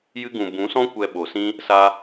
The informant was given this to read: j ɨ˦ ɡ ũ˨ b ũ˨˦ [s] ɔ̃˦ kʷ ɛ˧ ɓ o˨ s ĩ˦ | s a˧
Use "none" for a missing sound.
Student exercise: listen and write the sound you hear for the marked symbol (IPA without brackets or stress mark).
s